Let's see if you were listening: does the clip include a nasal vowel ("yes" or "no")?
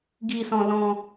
yes